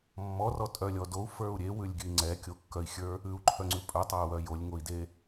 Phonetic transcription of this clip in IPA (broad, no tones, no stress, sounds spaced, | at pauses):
mː ɔ r ɔ tʼ œ lʲ ɔ d o u̯ f ə˞ u̯ ɾʲ e w ʉ lʲ ɡʲ ʉ i̯ ŋ͡ǀ ɛ kʲ o kː œ i̯ xʲ ə˞ | ʉ u̯ ǃʰ œ ŋ͡ǀ ʉ pʼ œ tˤ a u̯ w œ j o lʲ ŋ o i̯ d e